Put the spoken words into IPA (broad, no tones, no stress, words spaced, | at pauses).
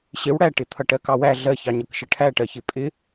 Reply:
ɕɪw ɽæʈɪ t̪ʰʌʈɜkɑwæ ɮɜçɑɲʌkʃʌ ʈʰæʈɜçɪ pʼɪ